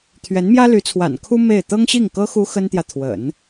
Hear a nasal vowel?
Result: no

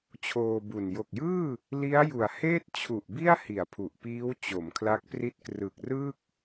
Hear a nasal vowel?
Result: no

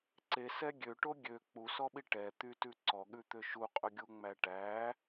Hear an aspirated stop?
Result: no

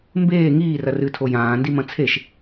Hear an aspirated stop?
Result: yes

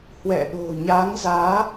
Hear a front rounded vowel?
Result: no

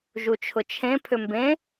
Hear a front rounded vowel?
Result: yes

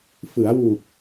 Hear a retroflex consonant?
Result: no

